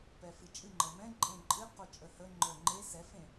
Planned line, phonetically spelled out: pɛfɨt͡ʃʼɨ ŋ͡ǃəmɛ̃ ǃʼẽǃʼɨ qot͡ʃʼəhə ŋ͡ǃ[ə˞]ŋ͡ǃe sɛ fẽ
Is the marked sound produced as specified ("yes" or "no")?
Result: yes